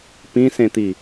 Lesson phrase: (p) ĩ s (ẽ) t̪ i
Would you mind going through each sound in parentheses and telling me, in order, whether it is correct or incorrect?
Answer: correct, correct

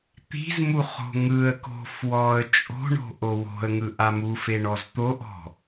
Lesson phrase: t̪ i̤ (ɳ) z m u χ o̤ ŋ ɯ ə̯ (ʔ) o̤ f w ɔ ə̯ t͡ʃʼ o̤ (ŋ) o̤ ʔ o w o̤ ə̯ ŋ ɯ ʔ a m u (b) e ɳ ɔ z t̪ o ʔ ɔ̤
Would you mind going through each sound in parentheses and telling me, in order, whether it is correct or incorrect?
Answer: incorrect, incorrect, incorrect, incorrect

